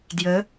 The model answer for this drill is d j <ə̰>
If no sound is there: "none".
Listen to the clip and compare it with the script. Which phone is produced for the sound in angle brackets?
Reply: ə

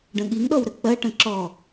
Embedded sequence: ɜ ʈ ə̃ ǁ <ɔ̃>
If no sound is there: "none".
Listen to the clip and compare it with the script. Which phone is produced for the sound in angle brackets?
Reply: ɔ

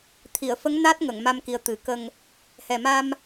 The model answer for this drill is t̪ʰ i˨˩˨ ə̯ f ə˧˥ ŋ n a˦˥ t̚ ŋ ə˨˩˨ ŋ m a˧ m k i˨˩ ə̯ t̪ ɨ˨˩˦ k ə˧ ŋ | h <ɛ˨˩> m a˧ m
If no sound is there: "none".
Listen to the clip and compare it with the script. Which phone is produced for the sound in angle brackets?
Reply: ɛ˨˩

